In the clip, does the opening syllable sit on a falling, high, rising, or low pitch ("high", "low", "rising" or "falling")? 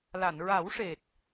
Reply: low